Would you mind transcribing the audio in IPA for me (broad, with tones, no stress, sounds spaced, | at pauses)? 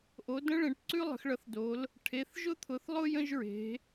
ʔ o˨˦ d ə̃˥ ɭ ẽ˨˦ ʈ ǀ ʉ˥ lˠ ə̤˨˦ x ɭ ʌ˨˦ θ d o˨˦ l | ʈʰ e˨˦ θ ʒ ʊ˥ t̪ʰ ʊ˨˦ θ lˠ ʊ˥ j ə̃˥ ʒ ɹ e̤˨˦